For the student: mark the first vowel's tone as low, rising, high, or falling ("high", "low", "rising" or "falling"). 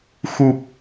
low